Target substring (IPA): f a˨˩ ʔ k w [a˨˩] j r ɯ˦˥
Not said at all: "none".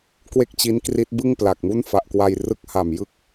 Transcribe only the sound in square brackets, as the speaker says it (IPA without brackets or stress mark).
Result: a˧